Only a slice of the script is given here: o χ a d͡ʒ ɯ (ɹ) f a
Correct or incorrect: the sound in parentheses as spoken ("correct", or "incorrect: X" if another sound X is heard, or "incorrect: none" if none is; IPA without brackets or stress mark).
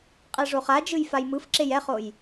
incorrect: j